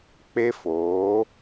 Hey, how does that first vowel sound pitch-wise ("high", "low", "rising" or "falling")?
high